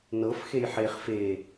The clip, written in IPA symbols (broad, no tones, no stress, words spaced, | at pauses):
nɤfxej ħeχ fe